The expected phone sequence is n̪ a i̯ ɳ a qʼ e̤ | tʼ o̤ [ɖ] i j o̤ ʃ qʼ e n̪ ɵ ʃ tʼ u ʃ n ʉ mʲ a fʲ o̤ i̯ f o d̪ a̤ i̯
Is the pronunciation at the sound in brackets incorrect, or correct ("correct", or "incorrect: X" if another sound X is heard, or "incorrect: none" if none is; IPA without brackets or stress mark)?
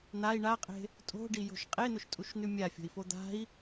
correct